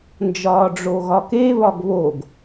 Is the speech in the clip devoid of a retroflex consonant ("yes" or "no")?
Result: no